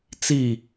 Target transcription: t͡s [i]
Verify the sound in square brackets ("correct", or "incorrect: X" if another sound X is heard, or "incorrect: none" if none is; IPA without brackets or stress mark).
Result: correct